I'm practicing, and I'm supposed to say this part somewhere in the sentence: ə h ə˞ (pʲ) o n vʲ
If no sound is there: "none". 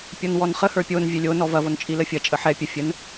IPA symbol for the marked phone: pʲ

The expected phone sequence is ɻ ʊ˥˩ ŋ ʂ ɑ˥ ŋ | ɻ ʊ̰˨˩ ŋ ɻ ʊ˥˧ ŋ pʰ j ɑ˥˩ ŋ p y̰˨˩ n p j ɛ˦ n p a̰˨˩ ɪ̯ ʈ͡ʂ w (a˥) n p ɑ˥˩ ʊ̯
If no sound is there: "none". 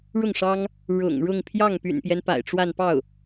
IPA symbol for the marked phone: a˥˧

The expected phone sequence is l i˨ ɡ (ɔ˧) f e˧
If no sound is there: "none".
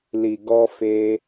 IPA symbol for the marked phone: ɔ˧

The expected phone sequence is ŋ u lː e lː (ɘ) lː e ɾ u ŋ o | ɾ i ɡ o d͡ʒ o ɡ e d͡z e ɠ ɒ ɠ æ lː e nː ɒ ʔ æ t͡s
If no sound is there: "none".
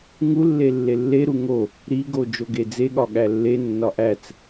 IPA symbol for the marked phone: e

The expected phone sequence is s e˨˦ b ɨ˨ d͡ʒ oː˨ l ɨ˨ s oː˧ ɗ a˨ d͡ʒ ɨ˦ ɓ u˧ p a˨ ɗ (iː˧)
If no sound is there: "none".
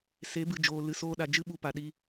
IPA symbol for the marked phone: iː˧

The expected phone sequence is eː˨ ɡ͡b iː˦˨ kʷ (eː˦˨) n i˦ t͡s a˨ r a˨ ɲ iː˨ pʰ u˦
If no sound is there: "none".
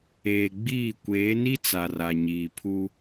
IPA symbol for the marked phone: eː˨˦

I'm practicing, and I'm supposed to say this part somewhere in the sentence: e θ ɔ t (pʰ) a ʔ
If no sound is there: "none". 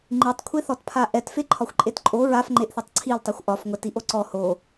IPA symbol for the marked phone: pʰ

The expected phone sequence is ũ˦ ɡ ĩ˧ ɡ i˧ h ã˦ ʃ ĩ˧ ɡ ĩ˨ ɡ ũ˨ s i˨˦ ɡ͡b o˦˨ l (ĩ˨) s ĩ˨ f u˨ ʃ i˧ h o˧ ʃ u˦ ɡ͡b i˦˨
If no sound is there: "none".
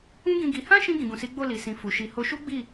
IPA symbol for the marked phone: i˨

